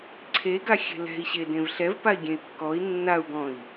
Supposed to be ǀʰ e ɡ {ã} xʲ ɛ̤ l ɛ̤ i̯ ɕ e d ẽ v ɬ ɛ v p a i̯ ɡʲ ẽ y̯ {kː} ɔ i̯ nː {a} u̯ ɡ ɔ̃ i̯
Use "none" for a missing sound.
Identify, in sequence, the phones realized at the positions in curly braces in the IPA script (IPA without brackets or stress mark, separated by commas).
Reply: a, kː, a